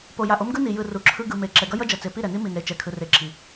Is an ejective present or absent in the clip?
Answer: absent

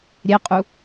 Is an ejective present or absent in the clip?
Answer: present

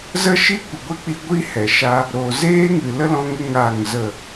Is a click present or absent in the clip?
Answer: absent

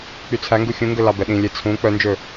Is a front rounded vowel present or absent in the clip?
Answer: present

